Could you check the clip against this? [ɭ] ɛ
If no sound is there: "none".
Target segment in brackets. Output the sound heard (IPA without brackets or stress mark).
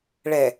ɭ